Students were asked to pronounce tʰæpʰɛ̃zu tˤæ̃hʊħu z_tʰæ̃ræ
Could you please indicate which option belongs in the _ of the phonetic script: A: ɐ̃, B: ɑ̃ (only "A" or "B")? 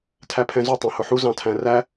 B